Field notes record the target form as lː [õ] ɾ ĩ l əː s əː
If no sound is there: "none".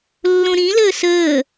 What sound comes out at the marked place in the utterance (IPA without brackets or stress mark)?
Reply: õ